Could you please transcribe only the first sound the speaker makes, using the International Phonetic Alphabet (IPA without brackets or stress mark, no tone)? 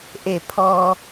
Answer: ʔ